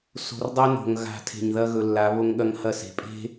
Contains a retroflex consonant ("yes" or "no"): no